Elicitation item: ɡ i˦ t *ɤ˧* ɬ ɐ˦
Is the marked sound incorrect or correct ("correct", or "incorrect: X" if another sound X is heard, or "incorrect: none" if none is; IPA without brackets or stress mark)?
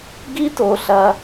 incorrect: o˧